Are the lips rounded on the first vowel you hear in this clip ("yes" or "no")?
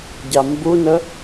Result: no